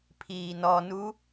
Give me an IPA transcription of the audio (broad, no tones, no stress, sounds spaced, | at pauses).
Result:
pʰ iː n ɔ n u